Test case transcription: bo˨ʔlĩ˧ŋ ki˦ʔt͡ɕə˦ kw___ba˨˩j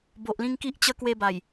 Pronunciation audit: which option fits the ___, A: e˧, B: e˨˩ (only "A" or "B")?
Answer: A